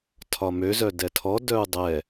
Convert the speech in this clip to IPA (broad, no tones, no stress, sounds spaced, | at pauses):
tʰ ɒ m ø z œ d ɛ tʰ ɔ d œ u̯ dˤ ɛ